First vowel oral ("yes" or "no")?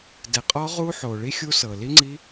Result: yes